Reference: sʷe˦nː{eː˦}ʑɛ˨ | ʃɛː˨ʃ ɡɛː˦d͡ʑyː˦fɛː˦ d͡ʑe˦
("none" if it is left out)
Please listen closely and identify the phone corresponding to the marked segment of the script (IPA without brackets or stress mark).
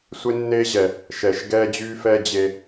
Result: eː˦